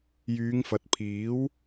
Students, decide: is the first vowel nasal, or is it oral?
oral